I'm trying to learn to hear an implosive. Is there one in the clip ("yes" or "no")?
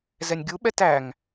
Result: yes